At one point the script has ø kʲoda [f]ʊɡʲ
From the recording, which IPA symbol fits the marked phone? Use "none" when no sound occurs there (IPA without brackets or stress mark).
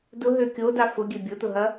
f